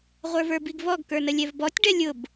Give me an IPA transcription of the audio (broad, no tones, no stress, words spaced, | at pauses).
ʁʷə˞və˞biɡvɔɡ kə˞nəlʲɛvbɔtʲ ɖɛlʲʊb